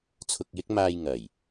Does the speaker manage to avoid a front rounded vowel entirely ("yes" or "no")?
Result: yes